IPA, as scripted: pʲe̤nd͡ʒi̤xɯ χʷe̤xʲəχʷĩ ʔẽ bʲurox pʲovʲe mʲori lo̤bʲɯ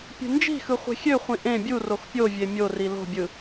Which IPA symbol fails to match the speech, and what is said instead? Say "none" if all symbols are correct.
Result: ə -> ø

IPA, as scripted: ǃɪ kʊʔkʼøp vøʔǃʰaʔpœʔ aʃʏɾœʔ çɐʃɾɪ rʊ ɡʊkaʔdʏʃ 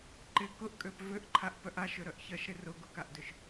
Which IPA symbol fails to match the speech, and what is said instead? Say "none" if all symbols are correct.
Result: none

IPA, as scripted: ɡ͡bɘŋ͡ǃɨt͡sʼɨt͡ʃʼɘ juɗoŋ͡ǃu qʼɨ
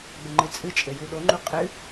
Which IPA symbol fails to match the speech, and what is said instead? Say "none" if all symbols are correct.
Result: none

